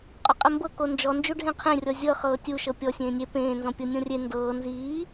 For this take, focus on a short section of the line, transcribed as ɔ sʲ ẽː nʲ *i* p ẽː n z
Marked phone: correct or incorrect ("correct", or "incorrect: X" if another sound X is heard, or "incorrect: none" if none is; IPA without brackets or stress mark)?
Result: incorrect: e